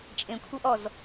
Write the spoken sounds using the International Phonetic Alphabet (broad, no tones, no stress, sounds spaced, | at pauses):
t͡ʃʼ ẽ kʷʰ ɤ ʔ ɔ z